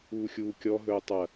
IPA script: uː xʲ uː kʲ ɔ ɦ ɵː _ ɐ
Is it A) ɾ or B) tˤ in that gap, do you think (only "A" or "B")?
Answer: B